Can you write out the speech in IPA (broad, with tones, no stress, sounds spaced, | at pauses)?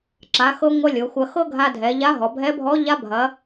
ǁ a˩˧ x ɤ˧ ŋʷ ɐ˧ lʲ ɤ˩˧ xʷ ɐ˧ x ɤ˥ ɡʱ a˧ dʱ ɛ˩˧ ʎ a˧˥ ɦ ɔ˩˧ bʱ ɛ˧˥ bʱ ɔ˧˥ ʎ a˧˥ bʱ ɐ˩˧